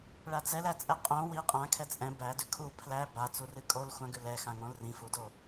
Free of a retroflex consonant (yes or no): no